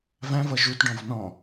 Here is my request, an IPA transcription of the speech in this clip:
v æ̃ v ʌ ʒ u t ɖ ɔ̃ v n ɔ̃

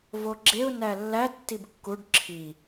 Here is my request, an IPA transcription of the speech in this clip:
v o ɡ͡ǁ e ʊ̯ n æ lː æ tː i b kː u ɖ ǁʰ i

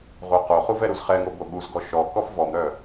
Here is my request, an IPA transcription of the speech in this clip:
ʁʷ œ q o χ u v ɛ ɾ u z χ ɛ ŋ o b o ɠ u z ɡ ɔ ʃ ɔ k ɔ f v ɔ m ɾ œ

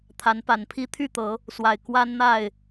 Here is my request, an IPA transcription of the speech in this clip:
t̪ʰ a˨˦ n p a˨˩ n pʰ i˦ t̪ʰ y˥˨ t̪ ɤ˨˦ | s w a˨˩ ɪ̯ k w a˦ n n̪ a˥˨ ɪ̯

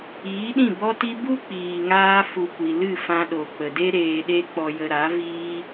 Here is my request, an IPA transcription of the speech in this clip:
iː˨˦ ɗ ĩ˦˨ b ɔ˦ t i˦ b u˦ k͡p iː˨ ŋ aː˧ f u˨ kʷ i˨ l ɨ˦˨ f ã˧ ɗ o˨ k͡p ə˨ d e˦ ɾ eː˧ ɗ e˦ k͡p ɔ˧ j ə˧ ɾ a˨˦ v iː˦

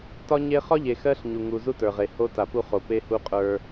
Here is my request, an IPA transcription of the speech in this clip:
t ɒ˦ ɲ e˦ χ ɒ˦ ʎ e˨ x ɜ˦ ɬ ɲ u˨ ŋ u˨ z u˦ t ə˞˨ ʁ e˨ h o˦ t a˨ p u˦ χ o˨ p e˦ h u˦ qʼ ə˞˦

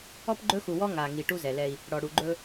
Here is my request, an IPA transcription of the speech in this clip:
ɔ˦ p ɡ͡ǃ ɵ˦ x u˨ w ɔ˦ ŋ a˨ ŋ i˨ ʈ u˦ z ɛ˨ l ɛ˦ i̯ | ɽ ɔ˨ ɽ u˨ ɡ͡ǃ ɵ˦

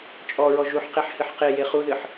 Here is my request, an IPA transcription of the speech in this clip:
t͡ʃʼ ɔ ɹ ɔ ʒ u ħ q e ħ h ɨ ħ q e j e χ u ð ɨ ħ

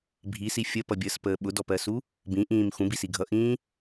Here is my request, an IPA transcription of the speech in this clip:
bʱ i s i fʲ ə p ʌ bʲ əː s p əː ɓ ʊ d ɔ p ɜ s u | b ĩ ʔ ĩː m x ũ b i s i ɡʱ ʌ ʔ ĩː

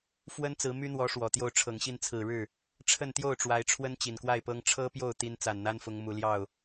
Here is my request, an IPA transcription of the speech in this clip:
f w ə˥ n t͡s ɹ̩˧˥ m y˥ n̪ w ɔ˧˥ ʂ w ɔ˨˩ t̪ j o˥˩ ʊ̯ ʈ͡ʂʰ ɤ˨˩ ŋ ɕ i˥˩ n t͡sʰ ɹ̩˨˩ ɻ ɻ̩˥˩ | ʈ͡ʂʰ ə˥˧ n t̪ j o˥˩ ʊ̯ ʈ͡ʂ w a˧˥ ɪ̯ ʈ͡ʂʰ w ə˥ n t͡ɕ i˨˩ n k w a˥˩ ɪ̯ p ɤ˥ ŋ ʈ͡ʂʰ ɤ˥ p j o˥˩ ʊ̯ t̪ i˥ n t͡s a˨˩ n n̪ a˥ n f ʊ˧˥ ŋ m u˨˩ l j ɑ˥˩ ʊ̯

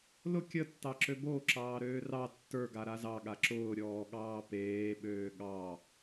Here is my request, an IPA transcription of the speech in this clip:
l ʊ kʲ ə tː ɑ ǁ ø b o ǁ ɑː ɾ øː r ɑ tː ə˞ ɡ a ɾ a z ɑ ɠ a ǁ ʊː ɾʲ ɔː ɠ ɑː p eː ɓ øː ɠ ɑ

